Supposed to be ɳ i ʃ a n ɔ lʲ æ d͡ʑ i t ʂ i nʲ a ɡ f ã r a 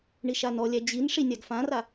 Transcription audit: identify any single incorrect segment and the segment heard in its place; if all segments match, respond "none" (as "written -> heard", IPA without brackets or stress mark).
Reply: t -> n